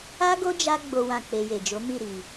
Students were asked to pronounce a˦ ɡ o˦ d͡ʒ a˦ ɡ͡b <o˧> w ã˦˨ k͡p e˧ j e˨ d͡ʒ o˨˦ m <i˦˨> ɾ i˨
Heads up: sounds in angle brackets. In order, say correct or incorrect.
incorrect: o˦, correct

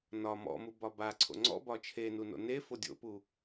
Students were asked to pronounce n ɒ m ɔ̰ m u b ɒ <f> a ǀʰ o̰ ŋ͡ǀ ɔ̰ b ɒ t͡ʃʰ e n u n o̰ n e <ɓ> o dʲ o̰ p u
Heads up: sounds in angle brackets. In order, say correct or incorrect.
incorrect: b, incorrect: f

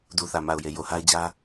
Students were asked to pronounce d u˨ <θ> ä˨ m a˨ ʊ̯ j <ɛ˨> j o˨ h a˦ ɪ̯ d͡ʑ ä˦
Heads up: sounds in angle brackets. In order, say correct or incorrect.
correct, incorrect: e˨

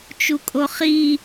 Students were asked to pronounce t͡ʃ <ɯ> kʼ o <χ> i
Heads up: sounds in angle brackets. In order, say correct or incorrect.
incorrect: u, correct

